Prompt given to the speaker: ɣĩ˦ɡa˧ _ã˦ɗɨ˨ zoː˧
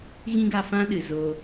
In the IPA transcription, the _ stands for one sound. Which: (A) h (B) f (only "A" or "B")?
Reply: B